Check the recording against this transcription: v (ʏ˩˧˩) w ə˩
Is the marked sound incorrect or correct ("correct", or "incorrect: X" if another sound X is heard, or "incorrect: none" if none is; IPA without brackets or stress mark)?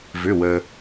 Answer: correct